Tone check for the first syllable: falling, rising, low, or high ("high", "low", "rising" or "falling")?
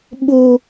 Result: high